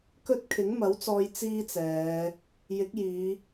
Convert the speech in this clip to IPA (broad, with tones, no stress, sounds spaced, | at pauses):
k ɵ˥ t̚ kʰ ɪ˨˥ ŋ m ɐ˨˥ w t͡s ɔː˧ j t͡s iː˥ t͡s ɛː˨˧ | j ɪ˨˥ k̚ j iː˨˧